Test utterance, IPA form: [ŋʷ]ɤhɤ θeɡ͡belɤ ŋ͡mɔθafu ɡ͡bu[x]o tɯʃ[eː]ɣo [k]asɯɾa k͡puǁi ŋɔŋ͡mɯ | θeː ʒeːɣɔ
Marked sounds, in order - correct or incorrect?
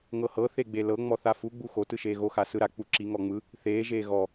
incorrect: ŋ, correct, correct, incorrect: x

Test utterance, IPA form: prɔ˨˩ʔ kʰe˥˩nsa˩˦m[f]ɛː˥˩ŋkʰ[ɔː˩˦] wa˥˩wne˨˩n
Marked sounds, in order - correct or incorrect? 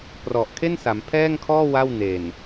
incorrect: pʰ, incorrect: ɔː˥˩

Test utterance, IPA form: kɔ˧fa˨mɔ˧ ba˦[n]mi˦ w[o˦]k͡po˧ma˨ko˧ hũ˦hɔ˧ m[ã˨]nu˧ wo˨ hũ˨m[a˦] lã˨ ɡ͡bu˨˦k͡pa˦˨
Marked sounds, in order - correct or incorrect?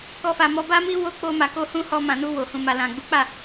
incorrect: none, correct, correct, incorrect: a˨

